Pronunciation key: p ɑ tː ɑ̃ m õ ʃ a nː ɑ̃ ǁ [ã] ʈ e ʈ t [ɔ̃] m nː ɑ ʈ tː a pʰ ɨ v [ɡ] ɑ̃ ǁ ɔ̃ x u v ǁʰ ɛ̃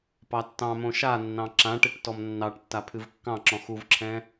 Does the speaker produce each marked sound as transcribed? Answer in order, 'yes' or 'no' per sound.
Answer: yes, no, no

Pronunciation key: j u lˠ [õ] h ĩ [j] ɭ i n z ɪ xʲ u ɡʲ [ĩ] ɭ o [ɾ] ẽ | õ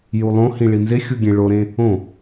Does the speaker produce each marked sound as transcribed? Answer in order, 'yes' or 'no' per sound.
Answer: yes, no, no, yes

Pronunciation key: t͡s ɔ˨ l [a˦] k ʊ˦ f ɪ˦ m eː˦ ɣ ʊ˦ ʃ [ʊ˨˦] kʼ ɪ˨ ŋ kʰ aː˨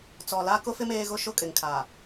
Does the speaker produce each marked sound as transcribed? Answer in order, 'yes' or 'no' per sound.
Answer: yes, no

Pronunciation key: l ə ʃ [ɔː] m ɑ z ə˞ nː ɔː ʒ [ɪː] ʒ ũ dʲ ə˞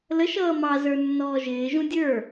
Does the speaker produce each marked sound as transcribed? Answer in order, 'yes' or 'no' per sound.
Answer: no, yes

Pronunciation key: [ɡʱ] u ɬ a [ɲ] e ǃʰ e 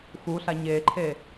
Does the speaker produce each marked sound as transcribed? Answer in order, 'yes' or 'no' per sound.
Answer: no, yes

